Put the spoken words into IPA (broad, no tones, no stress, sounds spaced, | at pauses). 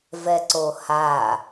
v ɛ ǀ o h a